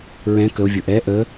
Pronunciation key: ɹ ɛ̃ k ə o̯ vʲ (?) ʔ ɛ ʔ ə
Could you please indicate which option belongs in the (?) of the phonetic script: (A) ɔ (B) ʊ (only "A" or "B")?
B